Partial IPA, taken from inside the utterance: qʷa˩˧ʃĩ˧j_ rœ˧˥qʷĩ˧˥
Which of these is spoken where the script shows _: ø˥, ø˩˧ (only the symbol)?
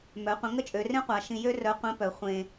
ø˥